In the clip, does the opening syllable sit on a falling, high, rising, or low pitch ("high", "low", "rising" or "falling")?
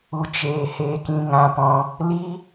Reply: low